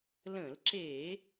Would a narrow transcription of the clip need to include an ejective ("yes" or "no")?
no